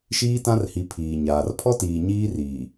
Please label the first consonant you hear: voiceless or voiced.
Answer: voiceless